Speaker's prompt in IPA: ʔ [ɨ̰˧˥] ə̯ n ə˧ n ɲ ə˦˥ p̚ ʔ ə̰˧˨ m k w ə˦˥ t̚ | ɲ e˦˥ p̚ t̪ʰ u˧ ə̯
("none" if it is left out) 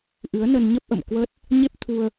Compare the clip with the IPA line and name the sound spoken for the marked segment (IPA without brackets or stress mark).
ɨ˨˦